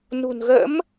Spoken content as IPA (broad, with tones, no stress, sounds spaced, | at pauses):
n ṳ˨˩ n ɣ ə̰˧˥ m